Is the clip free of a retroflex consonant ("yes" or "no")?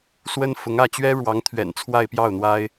no